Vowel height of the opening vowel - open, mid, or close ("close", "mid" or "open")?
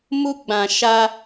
close